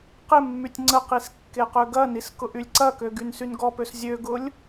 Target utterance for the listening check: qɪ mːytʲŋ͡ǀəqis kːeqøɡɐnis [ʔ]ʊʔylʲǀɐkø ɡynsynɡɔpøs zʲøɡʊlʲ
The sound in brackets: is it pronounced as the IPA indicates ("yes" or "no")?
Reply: no